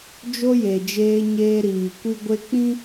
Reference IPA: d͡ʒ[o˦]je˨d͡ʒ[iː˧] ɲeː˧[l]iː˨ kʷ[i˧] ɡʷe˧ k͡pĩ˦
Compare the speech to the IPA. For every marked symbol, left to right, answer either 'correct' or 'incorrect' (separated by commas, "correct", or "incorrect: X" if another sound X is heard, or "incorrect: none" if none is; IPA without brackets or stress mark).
correct, incorrect: eː˧, incorrect: ɾ, correct